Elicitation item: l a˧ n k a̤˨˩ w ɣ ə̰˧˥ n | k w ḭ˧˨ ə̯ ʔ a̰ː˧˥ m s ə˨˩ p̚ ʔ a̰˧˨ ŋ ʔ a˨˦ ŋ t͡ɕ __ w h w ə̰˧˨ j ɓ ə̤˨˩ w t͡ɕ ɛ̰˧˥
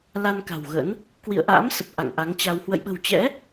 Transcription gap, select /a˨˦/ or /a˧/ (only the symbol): a˧